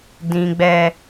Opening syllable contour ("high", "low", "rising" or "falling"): low